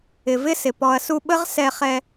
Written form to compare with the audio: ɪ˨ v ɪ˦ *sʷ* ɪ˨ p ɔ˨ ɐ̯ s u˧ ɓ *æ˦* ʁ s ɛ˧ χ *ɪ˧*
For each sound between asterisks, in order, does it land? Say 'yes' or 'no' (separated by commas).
no, no, no